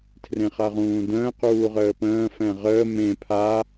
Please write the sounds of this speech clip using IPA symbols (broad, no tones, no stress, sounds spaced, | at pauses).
tʰ r ẽ χ a ʁ ũː d ə̃ː q uː ʁ əː p ə̃ː f ɛ̃ ʁ əː m ẽ pʰ a